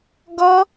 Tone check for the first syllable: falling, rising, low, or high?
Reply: high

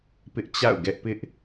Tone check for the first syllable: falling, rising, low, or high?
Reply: high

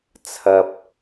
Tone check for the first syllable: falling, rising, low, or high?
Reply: low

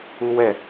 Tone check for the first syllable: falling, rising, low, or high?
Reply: high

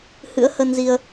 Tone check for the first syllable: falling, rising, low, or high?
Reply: rising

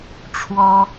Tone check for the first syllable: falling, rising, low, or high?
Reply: high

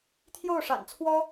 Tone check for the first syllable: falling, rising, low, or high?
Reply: falling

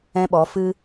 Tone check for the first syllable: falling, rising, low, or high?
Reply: high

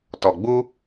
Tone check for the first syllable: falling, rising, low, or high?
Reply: low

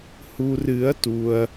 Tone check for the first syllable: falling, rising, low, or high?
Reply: low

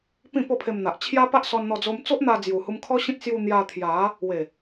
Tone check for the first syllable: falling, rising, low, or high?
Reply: falling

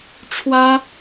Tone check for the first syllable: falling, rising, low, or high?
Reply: high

